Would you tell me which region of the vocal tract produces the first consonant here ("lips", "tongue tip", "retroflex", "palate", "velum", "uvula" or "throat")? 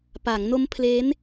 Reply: lips